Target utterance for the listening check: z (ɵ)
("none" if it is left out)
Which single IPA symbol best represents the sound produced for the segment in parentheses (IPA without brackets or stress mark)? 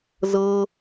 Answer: ɤ